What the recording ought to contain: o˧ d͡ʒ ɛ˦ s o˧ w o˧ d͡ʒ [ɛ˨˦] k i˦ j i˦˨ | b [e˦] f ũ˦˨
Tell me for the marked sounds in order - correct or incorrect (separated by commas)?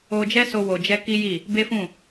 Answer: incorrect, correct